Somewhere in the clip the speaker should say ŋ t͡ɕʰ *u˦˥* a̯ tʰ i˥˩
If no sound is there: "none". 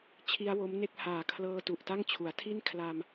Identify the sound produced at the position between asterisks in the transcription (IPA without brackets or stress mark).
u˩˦